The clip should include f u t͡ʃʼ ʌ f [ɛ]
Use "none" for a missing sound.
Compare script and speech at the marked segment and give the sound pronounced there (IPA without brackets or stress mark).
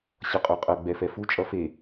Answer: e